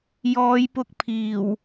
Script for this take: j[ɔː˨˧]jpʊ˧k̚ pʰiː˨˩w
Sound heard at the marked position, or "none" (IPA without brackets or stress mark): ɔː˨˧